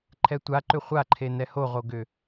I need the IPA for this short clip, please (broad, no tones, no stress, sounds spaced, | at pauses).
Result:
ǃʰ ɛ tʷ a ǃ ʏ χʷ a ǃʰ e n ɛ h o ʁ o ɡ ʏ